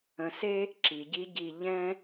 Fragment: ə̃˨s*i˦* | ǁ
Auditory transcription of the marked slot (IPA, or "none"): e˦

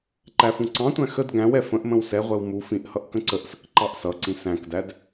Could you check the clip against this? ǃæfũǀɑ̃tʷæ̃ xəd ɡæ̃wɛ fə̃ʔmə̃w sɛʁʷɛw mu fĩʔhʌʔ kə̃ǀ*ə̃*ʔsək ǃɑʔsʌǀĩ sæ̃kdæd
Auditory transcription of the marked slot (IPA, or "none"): ə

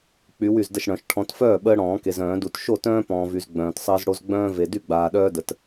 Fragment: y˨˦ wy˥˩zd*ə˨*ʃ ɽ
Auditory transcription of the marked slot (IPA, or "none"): ə˥˩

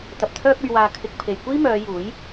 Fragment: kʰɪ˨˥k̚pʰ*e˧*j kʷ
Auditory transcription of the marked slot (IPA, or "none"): e˨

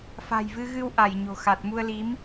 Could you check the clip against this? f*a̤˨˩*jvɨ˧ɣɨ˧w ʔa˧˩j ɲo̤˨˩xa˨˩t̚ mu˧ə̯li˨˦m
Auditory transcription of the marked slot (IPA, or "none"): a̤˨˩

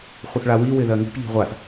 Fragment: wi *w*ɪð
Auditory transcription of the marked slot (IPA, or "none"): w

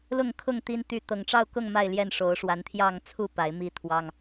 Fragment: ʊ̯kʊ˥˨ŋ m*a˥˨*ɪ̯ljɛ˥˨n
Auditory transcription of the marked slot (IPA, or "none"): a˥˨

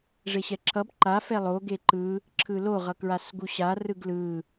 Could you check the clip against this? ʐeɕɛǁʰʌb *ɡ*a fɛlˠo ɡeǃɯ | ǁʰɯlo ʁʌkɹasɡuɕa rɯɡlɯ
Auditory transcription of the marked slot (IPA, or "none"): ǃ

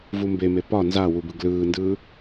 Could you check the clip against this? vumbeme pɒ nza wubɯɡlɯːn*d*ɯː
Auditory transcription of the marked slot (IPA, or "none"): d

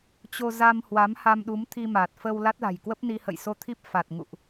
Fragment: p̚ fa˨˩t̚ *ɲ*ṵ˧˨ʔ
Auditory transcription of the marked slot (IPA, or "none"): ŋ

